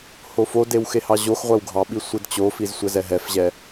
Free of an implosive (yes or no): no